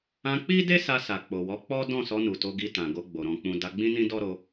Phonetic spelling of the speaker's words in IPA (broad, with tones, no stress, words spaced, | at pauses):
ã˧k͡pi˦de˦ sa˧ sa˨k͡po˨wɔ˨˦k͡pɔ˦ dɔ̃˦˨sɔ˧ nu˨to˧ɡi˧ tã˨ɡo˧ɡ͡bo˨ ɾɔ̃˨k͡pũ˨ da˧ɡ͡bĩ˦nĩ˦ dɔ˦ɾo˧